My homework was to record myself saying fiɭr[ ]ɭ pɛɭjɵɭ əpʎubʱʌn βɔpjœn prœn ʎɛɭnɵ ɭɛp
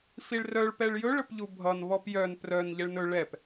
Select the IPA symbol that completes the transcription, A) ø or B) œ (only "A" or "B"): B